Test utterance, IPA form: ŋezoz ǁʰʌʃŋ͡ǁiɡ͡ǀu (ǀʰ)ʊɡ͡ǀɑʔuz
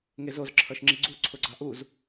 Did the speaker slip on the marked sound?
no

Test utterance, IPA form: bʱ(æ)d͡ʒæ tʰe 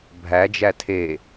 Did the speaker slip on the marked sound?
no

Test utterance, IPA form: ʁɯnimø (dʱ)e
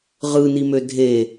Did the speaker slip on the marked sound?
no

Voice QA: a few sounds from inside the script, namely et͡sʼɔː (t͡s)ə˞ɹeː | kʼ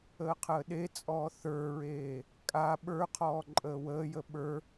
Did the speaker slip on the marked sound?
yes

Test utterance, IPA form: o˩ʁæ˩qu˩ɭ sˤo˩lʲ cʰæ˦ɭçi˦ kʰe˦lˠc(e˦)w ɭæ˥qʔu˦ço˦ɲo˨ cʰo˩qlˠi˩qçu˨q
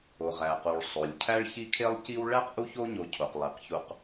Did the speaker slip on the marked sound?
yes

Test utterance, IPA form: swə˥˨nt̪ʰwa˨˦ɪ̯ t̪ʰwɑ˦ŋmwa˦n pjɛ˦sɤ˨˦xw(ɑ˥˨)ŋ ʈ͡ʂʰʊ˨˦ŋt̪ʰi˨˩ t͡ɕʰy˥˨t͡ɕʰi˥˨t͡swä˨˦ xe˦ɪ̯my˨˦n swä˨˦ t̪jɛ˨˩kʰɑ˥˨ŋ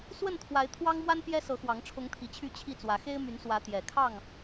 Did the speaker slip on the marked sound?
yes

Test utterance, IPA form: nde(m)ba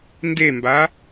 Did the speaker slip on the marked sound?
no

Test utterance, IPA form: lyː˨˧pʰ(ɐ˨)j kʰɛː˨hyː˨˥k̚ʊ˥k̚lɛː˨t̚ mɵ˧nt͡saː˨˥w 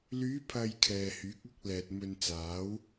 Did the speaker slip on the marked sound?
no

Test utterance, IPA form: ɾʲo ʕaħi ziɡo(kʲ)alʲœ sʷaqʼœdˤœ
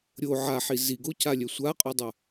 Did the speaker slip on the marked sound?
yes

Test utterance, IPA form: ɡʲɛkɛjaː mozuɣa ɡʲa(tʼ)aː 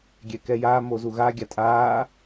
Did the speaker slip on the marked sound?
no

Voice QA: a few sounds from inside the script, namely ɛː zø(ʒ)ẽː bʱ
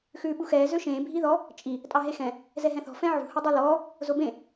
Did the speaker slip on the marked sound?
yes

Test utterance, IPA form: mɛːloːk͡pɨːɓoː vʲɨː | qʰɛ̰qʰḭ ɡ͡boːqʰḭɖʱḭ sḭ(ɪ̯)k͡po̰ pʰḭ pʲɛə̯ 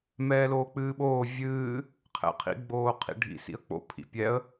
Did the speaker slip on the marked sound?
yes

